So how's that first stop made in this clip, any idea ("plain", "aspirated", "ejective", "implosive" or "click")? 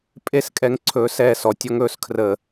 ejective